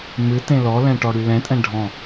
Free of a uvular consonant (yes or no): yes